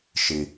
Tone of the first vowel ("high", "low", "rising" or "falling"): low